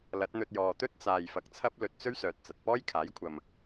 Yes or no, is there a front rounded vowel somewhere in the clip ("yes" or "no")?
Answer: yes